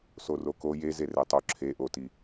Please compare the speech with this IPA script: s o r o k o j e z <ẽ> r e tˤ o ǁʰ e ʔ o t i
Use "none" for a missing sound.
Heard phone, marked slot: e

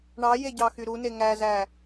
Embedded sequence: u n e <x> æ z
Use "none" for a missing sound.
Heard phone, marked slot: ŋ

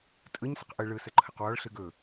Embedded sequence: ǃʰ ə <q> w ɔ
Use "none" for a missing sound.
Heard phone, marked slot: q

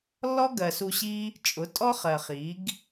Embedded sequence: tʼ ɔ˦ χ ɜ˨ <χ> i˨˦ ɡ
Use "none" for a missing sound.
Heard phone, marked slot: χ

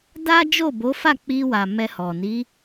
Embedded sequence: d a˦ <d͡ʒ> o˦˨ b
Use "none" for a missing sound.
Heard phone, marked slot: d͡ʒ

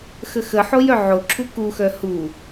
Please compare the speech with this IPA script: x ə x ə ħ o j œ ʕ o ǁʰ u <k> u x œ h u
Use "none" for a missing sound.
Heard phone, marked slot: k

